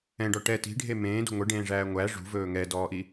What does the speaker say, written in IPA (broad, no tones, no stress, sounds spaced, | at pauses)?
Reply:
ɛ̃ ɖ ɔ ʈ ɛ t i̤ ɖʱ e m ẽː d ṳ ŋʷ ɛ ɖ ẽː ʐ æː ŋʷ æ ʐ ṳ v ɵː ŋ ɛ d ɔː ʔ i